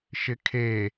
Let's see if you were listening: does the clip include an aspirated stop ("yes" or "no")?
yes